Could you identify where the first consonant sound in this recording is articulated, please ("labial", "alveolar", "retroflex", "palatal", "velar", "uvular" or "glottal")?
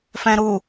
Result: labial